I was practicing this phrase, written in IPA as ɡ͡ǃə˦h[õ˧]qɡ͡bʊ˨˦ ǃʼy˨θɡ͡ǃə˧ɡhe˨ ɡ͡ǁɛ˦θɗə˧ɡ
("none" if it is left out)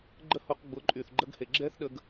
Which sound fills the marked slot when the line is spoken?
o˧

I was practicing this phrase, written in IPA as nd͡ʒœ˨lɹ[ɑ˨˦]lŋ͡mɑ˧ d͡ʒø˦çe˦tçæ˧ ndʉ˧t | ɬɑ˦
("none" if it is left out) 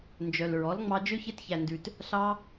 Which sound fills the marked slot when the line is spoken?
ɔ˨˦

